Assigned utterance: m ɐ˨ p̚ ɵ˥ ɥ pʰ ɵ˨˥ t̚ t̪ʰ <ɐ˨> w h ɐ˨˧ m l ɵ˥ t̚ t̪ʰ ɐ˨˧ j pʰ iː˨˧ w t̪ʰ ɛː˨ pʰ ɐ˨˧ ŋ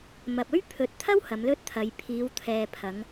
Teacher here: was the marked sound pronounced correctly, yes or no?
no